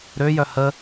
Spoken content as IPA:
ɾ ø j œ h ə

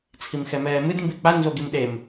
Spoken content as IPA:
t͡sʰ i m x ɛ m ɛː m ɨ d m b i k͡p a n z o ɡ i m ɗ e m

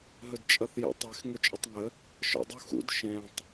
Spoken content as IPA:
ɦ ɵ d t͡ʃʼ ʌ θ j ə̰ tˤ e x ŋ ɵ t͡ʃʼ ə tˤ ŋ ə | ʃ ɔ̰ dˤ u x ṵ d ʃ ɛ̃ tˤ

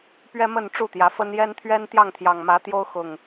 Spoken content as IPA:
p ɥ ɛ˦ m ə˥˨ n ʈ͡ʂ u˥˨ t̪ j ä˨˦ f ə˦ n j ɛ˦ n t̪ʰ ɥ ɛ˦ n t̪ j ɑ˥˨ ŋ t̪ʰ j ɑ˨˩ ŋ m ä˨˦ t̪ j o˦ ʊ̯ x ʊ˨˩ ŋ

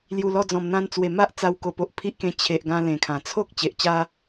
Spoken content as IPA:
l j u˨˩ l ɔ˧ d͡z ɔ̃˨˩ m n̪ ã˧ n t͡s w e˨˩ m a˦ ʔ t͡s a˧ w k o˨˩ p o˨ ʔ pʰ i˦ ʔ k ẽ˧ t͡ɕʰ e˨ ʔ ɡ ã˧ l ẽ˨˩ kʰ ã˨˩ t͡sʰ o˦ k̚ t͡ɕ e˨ ʔ t͡ɕ a˦

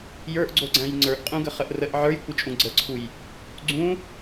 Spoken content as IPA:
j ə˞ ʔ ɡ͡ǀ o ɡ͡ǀ æ̃ j ŋ͡ǀ ə˞ ʔ qʼ ũ ɡ ə χ ə ʔ r ə ʔ ʕ ə˞ j kʷ ə t͡ʃʼ ũ ɡ͡ǀ ə ǀʰ u j | ɡ͡ǀ ũ

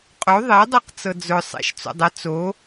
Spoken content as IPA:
qʼ o ðˤ e dˤ ɤ q t͡s ɤ d͡z ʊ sˤ ḛ ʃ t͡s o̰ dˤ ə t͡s o

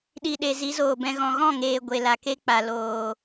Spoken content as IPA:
ɗ i˨ ɗ e˨ z i˨˦ z oː˨ b ɛ̃˧ ɣ ɔ̃˨ ɣ ɔ̃˦˨ ŋ eː˨ ɡʷ e˨ l a˨ k e˦ k͡p a˨ l oː˨

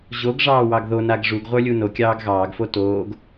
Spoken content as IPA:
ʑ o ɡ ʐ ɑː w ɑ ɡ ð o n a ɡ ʐ u ɡ ʁʷ ə˞ lʲ u n o kʲ ɑː ɡ ɣ ɑː ɡ f o t oː ɡ

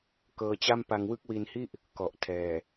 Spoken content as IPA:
k ɤː˧ t͡ɕ a˥˩ m p a˧ ŋ w ɯ˥˩ k̚ w i˧ n h i˥˩ ʔ | k ɔ˨˩ ʔ tʰ ɛː˨˩

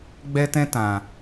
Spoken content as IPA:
ɡ͡b ɛ˦ t ɛ̃˦ t ã˨

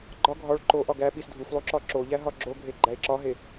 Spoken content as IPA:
ɡ͡ǃ ɒ ɡʱ ɒ ɭ ǃ o ʔ ɒ ɡ æ ɓ i s dʱ u f lˠ u ǁ ɒ ǁ o ʎ æ ɦ ɒ ɡ͡ǁ o ɡʱ e ɡ͡ǃ æ e̯ ǁ ɒ ɦ e

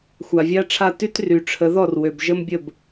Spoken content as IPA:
xʷ a˨ vʲ a˦ ʈ͡ʂʰ a˦˨ t y˦ t r y˨ ʈ͡ʂʰ ə˨˦ ð ɔ˦˨ r w ø˨ b ʒ ə˦ m bʲ ə˦˨ b

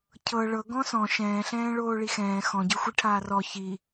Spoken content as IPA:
cʰ ɤ ɭ ɤ ɡ ɔ̃ s ɔ̃ ʃ ɛ̃ː ɬ ɛ̃ː ɭ oː ɭ i x ɛ̃ː x ɔ̃ ɟ ɯ xʷ i ʈʰ aː r ɔ ç i

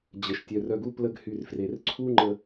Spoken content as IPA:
d͡ʑ ə˩ ʃ tʲ œ˩ r œ˨ ɡ u˦ p l ə˦ ɡ h y˨ r f r e˩ r ǀʰ u˦ ŋ͡ǃ ə˨

